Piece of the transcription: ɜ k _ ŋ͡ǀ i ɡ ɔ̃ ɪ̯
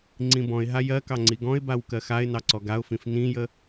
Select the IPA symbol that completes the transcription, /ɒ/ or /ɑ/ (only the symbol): ɑ